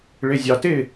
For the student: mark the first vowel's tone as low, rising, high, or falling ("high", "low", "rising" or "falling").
low